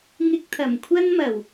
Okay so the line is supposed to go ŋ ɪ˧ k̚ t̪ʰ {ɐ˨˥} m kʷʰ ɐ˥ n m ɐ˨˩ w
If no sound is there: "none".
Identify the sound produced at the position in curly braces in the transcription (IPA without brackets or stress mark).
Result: ɐ˨˩